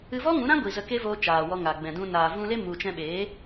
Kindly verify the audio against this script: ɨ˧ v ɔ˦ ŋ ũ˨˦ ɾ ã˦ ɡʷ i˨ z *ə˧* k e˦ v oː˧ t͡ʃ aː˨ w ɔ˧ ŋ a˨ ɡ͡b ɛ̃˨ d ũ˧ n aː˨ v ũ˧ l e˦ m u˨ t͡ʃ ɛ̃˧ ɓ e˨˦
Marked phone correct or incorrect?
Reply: correct